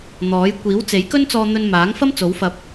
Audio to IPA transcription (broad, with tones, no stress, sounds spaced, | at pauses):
n̪ ɔː˨˥ j kʷ iː˨˥ w t͡s e˨˥ j k ɵ˥ n t͡s ɔː˧ n̪ ɵ˧ n m aː˨˥ ŋ f ɐ˥ m t͡s o˨˥ w f ɐ˧ p̚